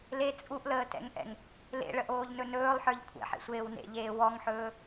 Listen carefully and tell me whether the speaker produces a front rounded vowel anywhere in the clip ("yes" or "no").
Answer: no